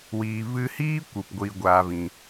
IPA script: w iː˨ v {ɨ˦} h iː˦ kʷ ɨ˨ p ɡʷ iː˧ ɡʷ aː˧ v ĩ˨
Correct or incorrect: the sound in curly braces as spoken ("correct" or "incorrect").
incorrect